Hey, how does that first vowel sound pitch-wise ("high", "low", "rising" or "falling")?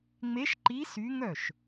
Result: rising